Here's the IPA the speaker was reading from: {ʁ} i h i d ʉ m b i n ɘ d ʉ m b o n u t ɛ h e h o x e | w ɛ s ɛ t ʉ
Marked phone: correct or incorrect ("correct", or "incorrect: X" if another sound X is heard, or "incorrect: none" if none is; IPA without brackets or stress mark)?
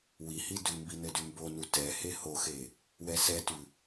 incorrect: w